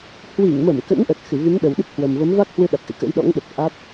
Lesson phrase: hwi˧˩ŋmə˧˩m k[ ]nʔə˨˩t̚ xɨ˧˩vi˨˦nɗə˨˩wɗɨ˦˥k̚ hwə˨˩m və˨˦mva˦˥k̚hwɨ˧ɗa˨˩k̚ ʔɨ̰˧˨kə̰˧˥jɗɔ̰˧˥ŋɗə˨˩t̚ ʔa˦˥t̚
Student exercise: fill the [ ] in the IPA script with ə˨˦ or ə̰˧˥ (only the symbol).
ə̰˧˥